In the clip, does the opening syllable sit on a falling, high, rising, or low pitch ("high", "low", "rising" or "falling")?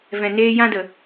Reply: low